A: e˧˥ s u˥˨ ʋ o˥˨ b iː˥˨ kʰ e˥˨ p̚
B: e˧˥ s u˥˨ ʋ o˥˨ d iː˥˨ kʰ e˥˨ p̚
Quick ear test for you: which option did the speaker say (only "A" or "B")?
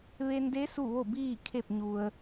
A